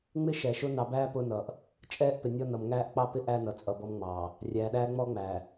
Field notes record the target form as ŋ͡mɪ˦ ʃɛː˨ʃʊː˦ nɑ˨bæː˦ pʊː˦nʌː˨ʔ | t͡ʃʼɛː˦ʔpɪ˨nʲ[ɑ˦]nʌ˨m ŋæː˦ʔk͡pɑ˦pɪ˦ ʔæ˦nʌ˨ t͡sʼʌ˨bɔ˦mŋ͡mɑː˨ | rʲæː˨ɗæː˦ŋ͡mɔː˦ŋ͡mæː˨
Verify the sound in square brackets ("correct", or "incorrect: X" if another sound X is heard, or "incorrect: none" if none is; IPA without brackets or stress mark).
incorrect: ɔ˦